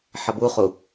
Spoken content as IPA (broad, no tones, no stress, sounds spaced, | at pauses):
ħ ʌ b u χ u